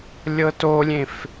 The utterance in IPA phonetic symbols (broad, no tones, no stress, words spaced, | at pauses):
lʲɤtolʲẽf